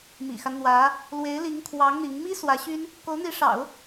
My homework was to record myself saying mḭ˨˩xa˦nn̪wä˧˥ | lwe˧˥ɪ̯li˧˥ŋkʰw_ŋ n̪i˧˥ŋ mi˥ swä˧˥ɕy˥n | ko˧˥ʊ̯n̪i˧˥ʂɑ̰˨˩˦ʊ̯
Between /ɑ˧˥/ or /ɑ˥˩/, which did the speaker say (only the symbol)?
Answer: ɑ˧˥